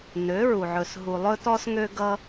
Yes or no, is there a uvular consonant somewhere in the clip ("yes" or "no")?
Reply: no